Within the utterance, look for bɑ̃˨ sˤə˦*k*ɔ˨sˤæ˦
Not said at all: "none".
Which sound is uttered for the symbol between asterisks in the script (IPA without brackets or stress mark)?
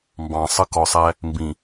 k